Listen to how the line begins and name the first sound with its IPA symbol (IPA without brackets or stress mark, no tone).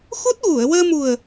x